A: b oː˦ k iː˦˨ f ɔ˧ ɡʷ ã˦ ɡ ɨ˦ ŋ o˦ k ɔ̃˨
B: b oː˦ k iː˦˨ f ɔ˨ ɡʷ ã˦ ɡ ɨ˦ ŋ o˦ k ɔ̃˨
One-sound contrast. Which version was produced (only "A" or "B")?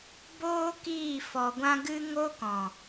A